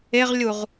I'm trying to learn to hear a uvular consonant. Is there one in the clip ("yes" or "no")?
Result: yes